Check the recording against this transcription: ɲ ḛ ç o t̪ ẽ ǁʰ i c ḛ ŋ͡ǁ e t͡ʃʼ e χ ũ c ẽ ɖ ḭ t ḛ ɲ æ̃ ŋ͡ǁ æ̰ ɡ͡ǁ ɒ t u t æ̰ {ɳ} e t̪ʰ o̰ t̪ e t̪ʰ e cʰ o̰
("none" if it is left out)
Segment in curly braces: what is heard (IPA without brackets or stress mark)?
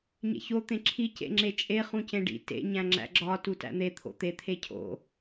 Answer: n̪